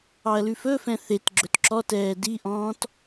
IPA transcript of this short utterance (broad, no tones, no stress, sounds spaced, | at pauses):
ɑ ɐ̯ l ʉ f ɵ f ɛ̃ θ e t ɡ͡ǁ ɵ t ǁ ɔ t ɛː d i ʔ ɔ̃ː t